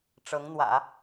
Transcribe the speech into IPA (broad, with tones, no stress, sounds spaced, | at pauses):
ʈ͡ʂ ɤ˧˥ ŋ n̪ w ä̰˨˩˦